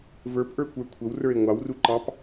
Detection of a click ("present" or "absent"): present